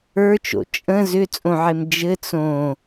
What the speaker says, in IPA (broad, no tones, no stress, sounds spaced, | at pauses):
ə˞ t͡ʃ o̰ t͡ʃʼ ə̃ z ʏ t͡sʼ õ ʕ e m d͡ʒ ɘ t͡s õ